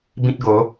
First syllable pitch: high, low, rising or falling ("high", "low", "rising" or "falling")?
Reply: high